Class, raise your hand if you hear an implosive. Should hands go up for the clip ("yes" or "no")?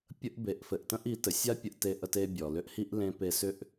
no